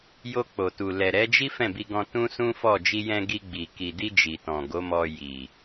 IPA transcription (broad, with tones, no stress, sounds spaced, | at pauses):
j o˧ k͡p o˨ t u˨ l ɛ˨ ɾ ɛ˨˦ d͡ʒ i˦ f ɛ̃˦˨ b i˧ ɡ ɔ̃˧ t ũ˦ s ũ˦ f ɔ˦˨ d͡ʒ i˧ j ɛ̃˧ ɡ i˧ ɡ͡b i˨ k i˨ d i˧ d͡ʒ i˨ t ɔ̃˨ ɡ o˨˦ m ɔ˧ j i˨